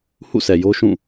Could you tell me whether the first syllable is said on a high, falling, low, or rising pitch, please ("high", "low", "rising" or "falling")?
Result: falling